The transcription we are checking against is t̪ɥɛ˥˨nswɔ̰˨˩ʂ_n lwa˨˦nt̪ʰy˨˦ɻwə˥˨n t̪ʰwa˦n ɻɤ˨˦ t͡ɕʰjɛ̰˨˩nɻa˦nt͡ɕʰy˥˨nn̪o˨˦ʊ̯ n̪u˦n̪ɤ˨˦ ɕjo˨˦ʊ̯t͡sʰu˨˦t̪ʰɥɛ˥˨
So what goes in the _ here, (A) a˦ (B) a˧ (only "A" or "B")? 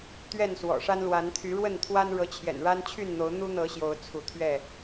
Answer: A